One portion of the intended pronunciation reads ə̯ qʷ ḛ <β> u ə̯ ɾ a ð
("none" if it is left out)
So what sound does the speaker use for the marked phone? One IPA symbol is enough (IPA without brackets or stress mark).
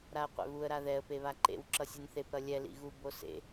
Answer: β